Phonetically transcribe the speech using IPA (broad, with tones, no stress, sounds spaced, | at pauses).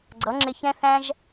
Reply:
ɡ͡ǀ ʌ˨˦ ŋ͡ǁ ɪ˧ ç ɛ̃˦ θ æ̃˦ ʒ